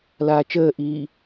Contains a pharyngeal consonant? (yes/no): no